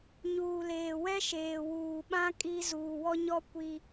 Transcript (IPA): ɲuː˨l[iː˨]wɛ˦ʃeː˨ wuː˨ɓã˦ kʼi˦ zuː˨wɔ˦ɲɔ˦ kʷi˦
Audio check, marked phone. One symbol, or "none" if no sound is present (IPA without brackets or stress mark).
eː˨